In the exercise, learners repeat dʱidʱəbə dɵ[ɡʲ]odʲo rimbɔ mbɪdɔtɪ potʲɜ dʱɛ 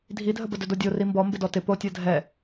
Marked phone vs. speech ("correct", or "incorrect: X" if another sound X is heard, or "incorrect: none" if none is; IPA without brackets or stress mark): incorrect: d